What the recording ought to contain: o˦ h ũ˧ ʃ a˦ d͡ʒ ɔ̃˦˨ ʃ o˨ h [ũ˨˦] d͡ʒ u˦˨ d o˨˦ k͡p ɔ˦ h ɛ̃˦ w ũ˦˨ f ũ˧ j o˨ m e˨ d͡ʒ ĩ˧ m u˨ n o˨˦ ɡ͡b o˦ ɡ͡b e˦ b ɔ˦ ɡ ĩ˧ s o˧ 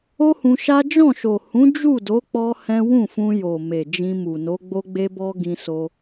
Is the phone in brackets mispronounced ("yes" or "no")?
no